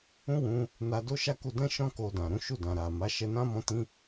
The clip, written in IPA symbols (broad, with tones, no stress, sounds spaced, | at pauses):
ũ˦ w ũ˧ | n a˧ d o˦ ʃ a˦ k u˧ d ɛ̃˦ ʃ ɔ̃˦ k o˧ d ã˨ ɾ ũ˨˦ ʃ u˦˨ d ã˨ ɾ a˨ m a˨˦ ʃ ɛ˧ n ã˦ m ɔ̃˧ t ĩ˧